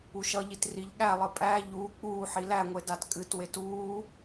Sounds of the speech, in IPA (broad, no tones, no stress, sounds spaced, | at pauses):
u ʃ ʌ ʎ i t r i ʎ ɠ æ lˠ ɨ pʼ æ ʎ uː k͡p uː ħ i l æ ŋʷ e d a t kʼ ɨ t w e t uː